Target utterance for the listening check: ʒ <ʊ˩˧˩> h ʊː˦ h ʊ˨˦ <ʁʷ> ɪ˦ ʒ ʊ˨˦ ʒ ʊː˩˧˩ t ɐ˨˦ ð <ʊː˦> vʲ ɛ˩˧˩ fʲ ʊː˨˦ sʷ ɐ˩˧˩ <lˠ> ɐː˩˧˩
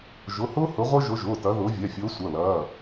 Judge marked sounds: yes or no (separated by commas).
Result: yes, yes, no, no